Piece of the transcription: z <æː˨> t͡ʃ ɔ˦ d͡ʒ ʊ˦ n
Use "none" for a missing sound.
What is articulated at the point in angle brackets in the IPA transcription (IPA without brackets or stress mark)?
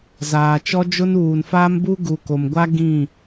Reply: aː˨